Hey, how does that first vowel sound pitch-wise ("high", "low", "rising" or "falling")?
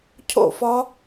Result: falling